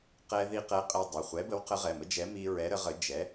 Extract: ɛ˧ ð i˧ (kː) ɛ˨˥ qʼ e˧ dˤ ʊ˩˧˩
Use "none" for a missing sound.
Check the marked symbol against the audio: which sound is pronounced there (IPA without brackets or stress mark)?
q